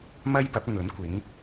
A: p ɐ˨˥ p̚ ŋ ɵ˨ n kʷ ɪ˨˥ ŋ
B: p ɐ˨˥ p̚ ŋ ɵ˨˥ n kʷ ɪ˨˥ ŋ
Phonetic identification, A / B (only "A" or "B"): B